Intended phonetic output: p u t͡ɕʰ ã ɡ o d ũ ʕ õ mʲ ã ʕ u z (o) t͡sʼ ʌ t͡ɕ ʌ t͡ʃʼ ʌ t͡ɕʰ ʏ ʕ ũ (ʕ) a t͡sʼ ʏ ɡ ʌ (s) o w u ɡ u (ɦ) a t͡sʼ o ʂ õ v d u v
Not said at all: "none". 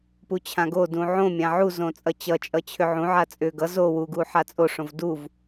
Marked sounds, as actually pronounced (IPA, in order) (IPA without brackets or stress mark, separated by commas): õ, ʕ, z, ħ